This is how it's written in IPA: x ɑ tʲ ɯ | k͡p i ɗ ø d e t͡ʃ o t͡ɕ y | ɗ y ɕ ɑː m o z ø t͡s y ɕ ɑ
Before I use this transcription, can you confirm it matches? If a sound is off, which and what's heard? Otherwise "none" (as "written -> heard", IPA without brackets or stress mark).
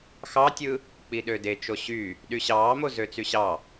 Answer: t͡ɕ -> ɕ